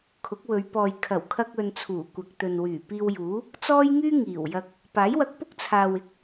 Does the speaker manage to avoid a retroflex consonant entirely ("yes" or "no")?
yes